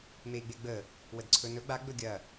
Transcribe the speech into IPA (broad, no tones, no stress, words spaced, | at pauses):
mei̯ɡ͡beɡ͡bə | wədǀʰɵnɵ ɡ͡ba ɡ͡bɵɡʲɐ